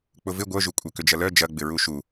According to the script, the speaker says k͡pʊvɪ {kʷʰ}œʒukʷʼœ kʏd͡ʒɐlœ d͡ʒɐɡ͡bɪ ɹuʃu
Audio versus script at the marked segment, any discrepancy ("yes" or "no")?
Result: yes